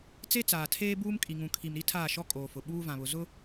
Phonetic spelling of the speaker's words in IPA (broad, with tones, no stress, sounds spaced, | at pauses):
t͡s e˦ t͡s aː˨ tʰ eː˦ b uː˦ m kʼ i˨ ŋ ũ˨ kʰ i˨ m ɾ i˦ tʰ aː˦˨ ʃ ɔ˦ kʼ oː˨ f ʊ˨ ɓ uː˦ v ã˨ β ʊ˨ z ʊ˦